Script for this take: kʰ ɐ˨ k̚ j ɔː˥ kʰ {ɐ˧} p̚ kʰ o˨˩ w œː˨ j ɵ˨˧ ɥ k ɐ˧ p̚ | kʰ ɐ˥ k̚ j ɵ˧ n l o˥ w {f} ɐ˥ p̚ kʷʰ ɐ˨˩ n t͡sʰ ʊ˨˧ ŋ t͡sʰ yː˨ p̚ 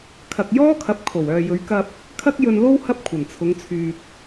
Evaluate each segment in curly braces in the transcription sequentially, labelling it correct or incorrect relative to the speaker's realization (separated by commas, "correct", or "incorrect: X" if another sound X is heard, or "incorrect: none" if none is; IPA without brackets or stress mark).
incorrect: ɐ˨˥, incorrect: h